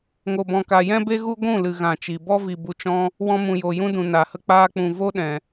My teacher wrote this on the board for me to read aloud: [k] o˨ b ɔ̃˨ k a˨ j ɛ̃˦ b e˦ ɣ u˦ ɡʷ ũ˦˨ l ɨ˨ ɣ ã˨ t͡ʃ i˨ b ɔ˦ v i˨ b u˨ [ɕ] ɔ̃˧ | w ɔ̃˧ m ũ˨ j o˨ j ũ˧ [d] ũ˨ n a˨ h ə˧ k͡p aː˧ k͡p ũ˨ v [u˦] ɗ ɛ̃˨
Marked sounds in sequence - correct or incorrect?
incorrect, incorrect, correct, incorrect

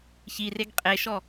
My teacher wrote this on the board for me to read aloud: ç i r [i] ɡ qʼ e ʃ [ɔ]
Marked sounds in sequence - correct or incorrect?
incorrect, correct

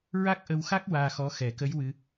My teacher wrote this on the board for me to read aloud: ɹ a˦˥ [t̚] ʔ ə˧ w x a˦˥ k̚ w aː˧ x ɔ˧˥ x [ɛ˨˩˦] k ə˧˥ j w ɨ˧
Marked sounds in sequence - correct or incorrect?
incorrect, correct

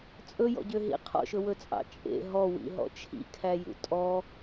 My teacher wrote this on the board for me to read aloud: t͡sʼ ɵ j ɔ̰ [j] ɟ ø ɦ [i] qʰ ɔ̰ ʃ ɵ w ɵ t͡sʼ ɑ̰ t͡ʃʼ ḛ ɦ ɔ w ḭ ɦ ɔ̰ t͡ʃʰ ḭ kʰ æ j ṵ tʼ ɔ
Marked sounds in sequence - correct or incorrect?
incorrect, incorrect

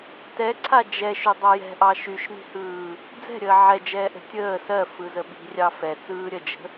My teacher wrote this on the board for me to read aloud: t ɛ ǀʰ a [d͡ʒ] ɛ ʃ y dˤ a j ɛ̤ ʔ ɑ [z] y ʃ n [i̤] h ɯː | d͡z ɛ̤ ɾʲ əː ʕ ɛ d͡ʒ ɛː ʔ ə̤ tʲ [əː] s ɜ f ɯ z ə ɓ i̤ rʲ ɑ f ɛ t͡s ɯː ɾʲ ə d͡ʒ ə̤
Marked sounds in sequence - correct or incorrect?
correct, incorrect, correct, correct

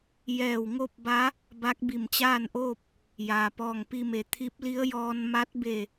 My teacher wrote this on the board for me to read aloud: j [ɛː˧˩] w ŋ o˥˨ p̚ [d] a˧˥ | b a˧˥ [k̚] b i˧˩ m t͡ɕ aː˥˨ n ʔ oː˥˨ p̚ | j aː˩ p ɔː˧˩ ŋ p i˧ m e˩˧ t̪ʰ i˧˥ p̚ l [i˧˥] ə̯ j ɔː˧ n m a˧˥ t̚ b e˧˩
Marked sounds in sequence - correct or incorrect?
correct, incorrect, correct, correct

